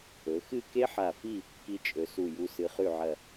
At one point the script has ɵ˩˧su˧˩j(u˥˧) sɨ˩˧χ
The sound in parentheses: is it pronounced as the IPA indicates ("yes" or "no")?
no